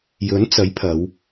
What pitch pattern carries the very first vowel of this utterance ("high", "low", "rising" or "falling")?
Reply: rising